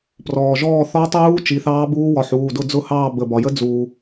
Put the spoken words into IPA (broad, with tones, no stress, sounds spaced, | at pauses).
p r ɔː˩ ʒ ɔː˥˨ θ ɔ˧˥ tˤ uː˧˥ t͡ʃ i˩˧˩ θ ɑː˧˥ b uː˧˥ w ɒ˩˧˩ ħ uː˩˧˩ d ʊ˥˨ d͡z ʊ˥˨ h ɑː˥˨ b ə˩˧˩ b ɒ˩ j ə˧˥ d͡z uː˩